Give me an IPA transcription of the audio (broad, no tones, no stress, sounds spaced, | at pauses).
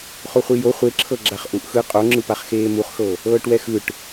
χ o χʷ i j o χʷ e ǁʰ ɤ ɡ͡ǁ a χ ʔ u ʔ x ɯ qʼ o ŋ͡ǁ ɯ p a χ x eː m u χ x ɤ | ɤː ʈ w ɛ x ɯ ʈ